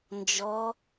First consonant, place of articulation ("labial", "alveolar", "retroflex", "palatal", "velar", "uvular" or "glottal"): alveolar